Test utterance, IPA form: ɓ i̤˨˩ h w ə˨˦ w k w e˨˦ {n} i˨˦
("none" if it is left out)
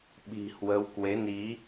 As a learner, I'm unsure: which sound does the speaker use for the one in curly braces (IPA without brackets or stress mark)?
n